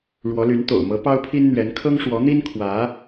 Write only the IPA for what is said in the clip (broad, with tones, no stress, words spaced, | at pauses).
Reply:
ɻwɔ˧˥ly˧˥n t̪o̰˨˩ʊ̯mɤ˧˥ pɑ˥ʊ̯pʰi˥n n̪ɥɛ˧˥n kʰɤ˥ŋ ʂwɔ˧˥n̪i˥n kʰwä˧˥